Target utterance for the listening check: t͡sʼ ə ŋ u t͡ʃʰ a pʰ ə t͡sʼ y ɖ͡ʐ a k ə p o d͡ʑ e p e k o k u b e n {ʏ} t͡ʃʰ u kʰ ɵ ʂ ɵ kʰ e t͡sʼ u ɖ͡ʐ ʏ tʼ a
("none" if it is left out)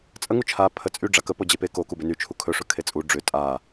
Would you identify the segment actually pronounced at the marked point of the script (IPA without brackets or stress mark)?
y